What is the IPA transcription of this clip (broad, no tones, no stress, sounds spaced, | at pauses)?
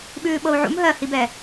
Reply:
ɓ ʉː ɓ ɤ u̯ ʕ ṵ m ɦ ɜ h i b ɛ